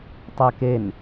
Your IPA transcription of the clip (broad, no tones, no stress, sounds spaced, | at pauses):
tˤ e k e n